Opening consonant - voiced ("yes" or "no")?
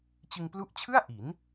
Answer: no